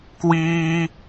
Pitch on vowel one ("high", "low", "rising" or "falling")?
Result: high